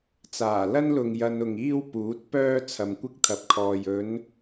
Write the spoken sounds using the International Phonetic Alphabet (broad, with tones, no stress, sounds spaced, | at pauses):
t͡s aː˨˩ l ɐ˥ n l ʊ˨ ŋ j ɐ˧ n ʊ˨ ŋ iː˥ w p uː˨˥ t̚ p œː˥ t͡sʰ ɐ˨ m kʷ ɪ˥ k̚ t̪ʰ ɐ˨ p̚ kʰ ɔː˨ j ɵ˨˧ n